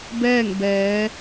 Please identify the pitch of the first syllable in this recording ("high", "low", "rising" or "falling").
falling